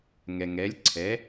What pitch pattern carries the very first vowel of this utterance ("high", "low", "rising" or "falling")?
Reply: low